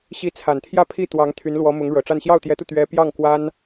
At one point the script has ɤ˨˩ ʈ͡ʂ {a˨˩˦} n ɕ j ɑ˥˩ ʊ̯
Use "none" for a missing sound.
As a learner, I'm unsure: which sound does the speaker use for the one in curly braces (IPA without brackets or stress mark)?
a˥˧